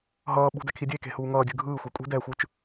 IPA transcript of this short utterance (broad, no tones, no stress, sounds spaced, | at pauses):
ɦ ʌː ɓ ṳ d ɛ kʰ i dʲ e k e̤ h uː ŋ ʌː dʲ ɯ ɡʱ ɯː xʷ e kʷʼ i̤ d ɛ xʷ ɯ t͡ʃ